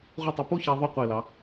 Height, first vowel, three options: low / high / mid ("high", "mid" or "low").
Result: high